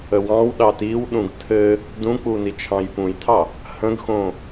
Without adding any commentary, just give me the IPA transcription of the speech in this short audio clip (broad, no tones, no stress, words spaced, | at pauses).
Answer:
əwɑ̃wɗɑ tiwɗũɡ tʰɘ | dũk͡pu nit͡ʃʰɑ̃jpũjtʰɑ | hə̃ɡxõ